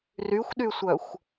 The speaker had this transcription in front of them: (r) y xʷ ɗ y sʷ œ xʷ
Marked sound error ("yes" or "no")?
no